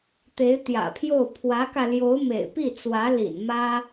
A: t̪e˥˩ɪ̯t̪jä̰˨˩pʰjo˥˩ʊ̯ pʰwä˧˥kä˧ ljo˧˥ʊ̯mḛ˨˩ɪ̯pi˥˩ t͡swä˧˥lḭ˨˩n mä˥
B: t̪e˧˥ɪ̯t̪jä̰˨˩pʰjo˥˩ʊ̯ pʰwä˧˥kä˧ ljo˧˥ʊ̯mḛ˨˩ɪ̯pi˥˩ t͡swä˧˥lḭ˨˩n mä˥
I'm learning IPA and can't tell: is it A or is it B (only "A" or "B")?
B